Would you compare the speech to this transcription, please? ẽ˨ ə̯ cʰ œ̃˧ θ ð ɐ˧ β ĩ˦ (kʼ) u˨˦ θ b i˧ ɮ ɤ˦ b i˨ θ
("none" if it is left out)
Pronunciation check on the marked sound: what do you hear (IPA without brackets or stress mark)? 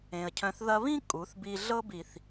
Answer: kʼ